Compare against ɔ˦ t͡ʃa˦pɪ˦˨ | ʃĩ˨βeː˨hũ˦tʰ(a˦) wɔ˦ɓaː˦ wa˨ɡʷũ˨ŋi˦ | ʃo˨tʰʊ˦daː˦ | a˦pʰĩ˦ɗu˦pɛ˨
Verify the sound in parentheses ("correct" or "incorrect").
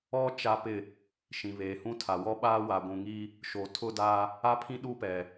incorrect